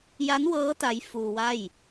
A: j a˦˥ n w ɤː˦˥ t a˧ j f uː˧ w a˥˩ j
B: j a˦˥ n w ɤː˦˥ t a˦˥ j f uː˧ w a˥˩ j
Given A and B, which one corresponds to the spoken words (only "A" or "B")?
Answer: B